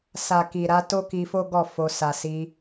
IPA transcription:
s a˨ k i˨ ɾ a˧ t o˦ k i˧ f o˦ ɡ ɔ˦˨ f o˧ s a˨ s i˧

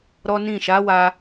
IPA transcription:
ɾ ɔ˦ n ĩ˦˨ ʃ a˨˦ w a˧

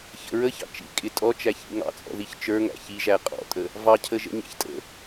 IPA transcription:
ç ə̰ ɹ ə ç ɑ̰ t͡ʃ ḭ kʼ ɪ tʼ ɔ t͡ʃ æ ç ḭ ŋ ɑ̰ t͡sʼ ɔ̰ ð i ç t͡ʃ ə˞ ŋ æ̰ ç i ʒ æ qʼ ɔ̰ tʼ ə | v ɑ cʰ ə ʒ ə̰ ɲ æ̰ ç tʼ ə̰

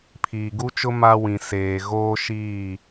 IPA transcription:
pʰ iː˨ ɡ u˦ t͡ʃ ʊ˦ m a˦ w ĩ˨ s eː˨ ɣ oː˦ ʃ iː˦˨

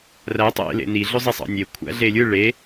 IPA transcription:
r æ tˤ ḛ l ḛ n i ɮ ø zˤ i sˤ ɑ̰ nʲ e kʷʰ æ̰ ɮ e lʲ ɯ ɭ e

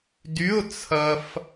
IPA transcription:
d y˧˥˧ ʊ̯ t͡sʰ ɐ˧ f

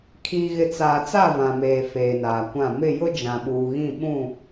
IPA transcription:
kʰ iː˨ ɣ ɪ˨ t͡s aː˨ t͡s a˦˨ v ã˨ m eː˨ f eː˨ n aː˨ kʷ ã˦˨ m ɪ˦˨ j ʊ˦ d͡ʒ ã˨ ɓ uː˨ ɣ ĩ˦˨ ɓ ũ˦˨

